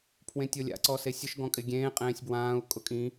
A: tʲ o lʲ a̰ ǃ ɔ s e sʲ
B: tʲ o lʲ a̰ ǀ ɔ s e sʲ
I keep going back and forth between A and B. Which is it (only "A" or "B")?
B